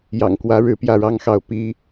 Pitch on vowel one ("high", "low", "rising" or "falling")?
low